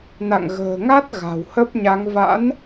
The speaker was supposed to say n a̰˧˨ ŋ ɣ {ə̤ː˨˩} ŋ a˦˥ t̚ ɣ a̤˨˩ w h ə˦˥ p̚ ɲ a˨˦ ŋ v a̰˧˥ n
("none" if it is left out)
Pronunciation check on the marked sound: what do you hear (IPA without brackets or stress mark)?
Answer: ə̤ː˨˩